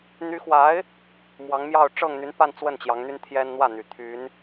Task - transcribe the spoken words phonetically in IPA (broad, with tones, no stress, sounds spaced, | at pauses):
n̪ y˧˥ x w a˧˥ ɪ̯ | m w ɑ˧˥ ŋ m j ɑ˥˧ ʊ̯ ʈ͡ʂ ɤ˥˩ ŋ n̪ y˧˥ n p a˥˧ n t͡s w ə˥˩ n t͡ɕ j ɑ˧˥ ŋ n̪ y˥ n t̪ʰ j ɛ˥ n n̪ w ä˥˩ n̪ y˨˩ t̪ʰ y˧˥ n